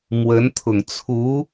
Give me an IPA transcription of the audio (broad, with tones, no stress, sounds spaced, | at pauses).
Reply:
m w ə˧˥ n t̪ʰ ʊ˨˩ ŋ t͡sʰ u˧˥